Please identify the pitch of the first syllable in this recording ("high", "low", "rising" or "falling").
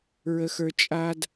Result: high